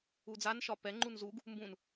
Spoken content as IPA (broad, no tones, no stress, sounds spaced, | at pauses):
u d͡z a n ʃ ɒ p ɛ ŋ͡ǃ u n z u ɡ | m b ũ n